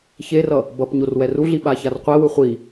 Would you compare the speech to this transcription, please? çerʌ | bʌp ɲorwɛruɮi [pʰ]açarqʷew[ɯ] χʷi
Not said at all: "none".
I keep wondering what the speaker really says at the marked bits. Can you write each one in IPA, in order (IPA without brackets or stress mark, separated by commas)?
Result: ɓ, ɯ